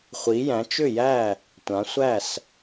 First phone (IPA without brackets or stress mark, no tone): χʷ